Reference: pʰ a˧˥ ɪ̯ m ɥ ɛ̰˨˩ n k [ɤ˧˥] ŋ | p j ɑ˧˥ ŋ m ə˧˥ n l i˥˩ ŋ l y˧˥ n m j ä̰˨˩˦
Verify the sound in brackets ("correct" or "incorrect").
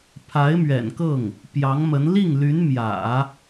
incorrect